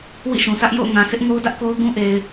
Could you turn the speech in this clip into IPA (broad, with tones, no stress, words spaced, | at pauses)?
wḭ˦˨ʃũ˨sʰä˦ʔ jo̰˦˨ʊ̯ ŋã˨ sɪ˦ʔ ŋo˦ʊ̯dä˦ʔko˦ʊ̯ ɡũ˦ʔe˨ɪ̯